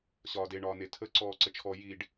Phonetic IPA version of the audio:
ɕ ɒː d e ɳ ɒː n e tʰ ə ǀ ɔː ǀ ə t͡ʃʰ ɔ j i ɖ

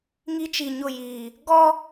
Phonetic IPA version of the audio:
ŋ i˦ t͡ʃ i˨ ɲ ʊ˦˨ j iː˨ | ɡ ɔ˦

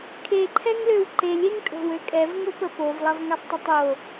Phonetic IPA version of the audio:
kʰ e ǃʰ ɛ ŋ l ø w ǃ e lʲ e ŋ tʼ o̤ w ø kʼ ɛ v ŋ o p ə p o v lˠ ɐ v ŋ ɐ sˤ tˤ ɐ tˤ o

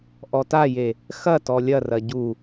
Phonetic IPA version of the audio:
ʔ ɔ t a j e | x ɐ t ɔ lʲ ɐ r ɐ ɟ u

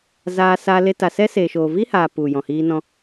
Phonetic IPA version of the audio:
z aː˧ s a˧ l e˧ t a˨ s ɛ˦ s eː˨ ʃ oː˨ v i˦ h aː˨ p u˨ j ɔ̃˨ h iː˧ n ɔ̃˧

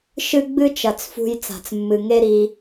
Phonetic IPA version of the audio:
ʃ ɨ˦ ɡ͡b ɨ˦ t͡ʃ ɐ˨ t͡s f ṳ˧ j t͡s a̤˨ t͡s mː ɨ˨ ŋ e˦ ɾ i˧

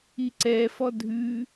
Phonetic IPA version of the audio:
i ǀ ɛ f ɔ dʱ ʉ

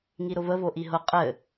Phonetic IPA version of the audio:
ŋ i ɾ ʊ v ə v o ʔ i ɦ ʊ qʼ ɘ

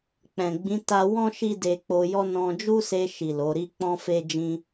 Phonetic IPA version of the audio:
k͡p ɛ̃˨ ɡ͡b ĩ˨˦ t a˧ w ɔ̃˧ ʃ i˦ d e˧ k͡p o˧ j ɔ˦ n ɔ̃˧ d͡ʒ u˦ s e˧ ʃ i˨ l o˨˦ ɾ i˦ k͡p ɔ̃˦ f e˦ d͡ʒ ĩ˦

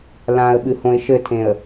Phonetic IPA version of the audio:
l ã ə̯ ɓ ɨ h õ ɪ̯ ʃ ɘ tʰ ẽ ə̯

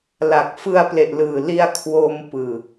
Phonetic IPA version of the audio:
l a˨˩ k̚ f ɯ˧ a̯ p l e˨˩ ʔ l ɯː˨˩ l i˧ a̯ kʰ w o˧ m p ɯː˨˩

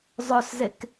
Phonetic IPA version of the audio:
zˤ œ s z e k

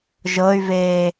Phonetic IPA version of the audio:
ʒ ɤ y̯ v eː

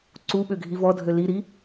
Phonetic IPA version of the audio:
ǀ u ɓ ø ɡʱ i v ɔ dʱ ø l i ɾ i

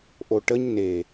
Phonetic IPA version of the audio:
ʔ o ʈ ə ɲ n e

